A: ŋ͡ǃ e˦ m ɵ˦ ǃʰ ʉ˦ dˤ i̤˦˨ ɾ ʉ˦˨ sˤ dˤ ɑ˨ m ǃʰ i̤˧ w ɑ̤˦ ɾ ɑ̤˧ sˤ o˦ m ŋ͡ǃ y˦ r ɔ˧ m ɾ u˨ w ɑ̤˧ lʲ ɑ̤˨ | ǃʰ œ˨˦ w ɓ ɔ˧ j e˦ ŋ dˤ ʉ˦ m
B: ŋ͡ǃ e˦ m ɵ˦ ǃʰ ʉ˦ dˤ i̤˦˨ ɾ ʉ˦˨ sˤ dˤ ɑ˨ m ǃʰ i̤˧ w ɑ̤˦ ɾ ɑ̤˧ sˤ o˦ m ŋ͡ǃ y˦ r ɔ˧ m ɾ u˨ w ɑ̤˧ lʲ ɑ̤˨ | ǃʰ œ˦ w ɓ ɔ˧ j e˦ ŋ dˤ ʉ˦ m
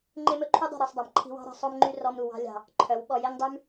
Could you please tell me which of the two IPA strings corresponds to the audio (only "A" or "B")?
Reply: A